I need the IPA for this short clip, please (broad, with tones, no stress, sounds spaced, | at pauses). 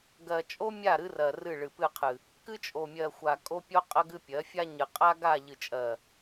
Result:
ɡ ɜ˨ t͡ʃʼ o˦ mʲ a˦˨ ɾ ɨ˦ r ɜ˨ r ɨ˦˨ ɭ ɨ˨ p ɨ˦˨ qʰ ɨ˨ | k ɨ˦ t͡ʃʼ o˨ mʲ ɜ˨ xʷ a˨ kʼ o˦ pʲ o˦ qʼ ə˦ ɡ ɨ˦ pʲ ɜ˨˦ fʲ a˦ ɲ ɨ˨ qʼ a˦ ɡ a˦˨ ʎ ɨ˨ t͡ʃʼ ɜ˨